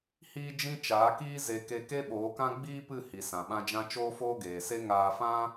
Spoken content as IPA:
h iː˧ d͡ʒ ĩ˧ t͡ʃ aː˨˦ k iː˦ z e˧ k e˧ k e˦ ɓ oː˨˦ k ã˦ ɡ͡b iː˦ p ɨ˦˨ h i˨ s ã˨ ɓ ã˧ d͡ʒ ã˧ t͡ʃ oː˦ f oː˦ ɡ eː˨ s e˦ ŋ aː˧ f ã˦

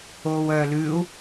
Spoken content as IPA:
oː w œː l ʉː u̯

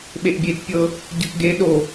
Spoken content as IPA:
ɓ e ʔ bʲ e t pʲ ɤ | ɟ ɤ k ɡ e ɗ o

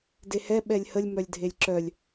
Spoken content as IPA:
d e h ɛ ɓ ɛ lʲ h ə lʲ m œ lʲ dʱ e lʲ ǁ œ lʲ

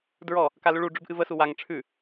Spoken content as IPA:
d ɹ ɔ | k a l ʉ ɭ u ɖ͡ʐ ʉ b ʔ ɨ v ə s u w a ŋ ʈ͡ʂʰ ʉ

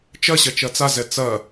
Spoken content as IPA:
t͡ʃ ɐ ɕ ɐ t͡ʃ ɐ t͡s a z ɛ t͡s ɐ

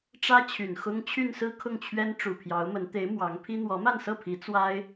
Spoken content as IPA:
ʈ͡ʂ ä˥ t͡ɕʰ y˨˩ n x ʊ˥ ŋ t͡ɕʰ y˥˧ n s ɹ̩˥˧ kʰ ʊ˥˩ ŋ t͡ɕʰ ɥ ɛ˥ n ʈ͡ʂ u˨˩ pʰ j ɑ˧˥ ʊ̯ m ə˧˥ n t̪ e˧˥ ɪ̯ m w ɑ˧˥ ŋ pʰ i˥ n̪ w ɔ˧˥ m a˥˧ n s ɤ˥˩ pʰ i˧˥ t͡s w a˥ ɪ̯

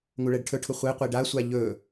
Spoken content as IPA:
ŋ u ɭ ɛ ɖ ʈʰ ɵ ʈʰ ʊ χʷ e qʷ e ɖ a sʷ a ʎ ɵ

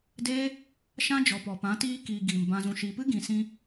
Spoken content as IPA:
d e˦ | ʃ ã˦ d͡ʒ ɔ˨ p ɔ˨ p ã˨˦ t iː˦ k iː˨ ɡ iː˨ m b ã˨ z ũ˨ ʃ iː˨ p ɨ˦ ɡ ĩ˨ s ĩ˧

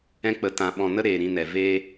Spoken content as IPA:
ɛ̃˧ k͡p ə˨ t ã˨ ɓ ɔ̃˨ n ə˦ ɾ eː˨ ɾ ĩ˧ n ɛ˨ v eː˦

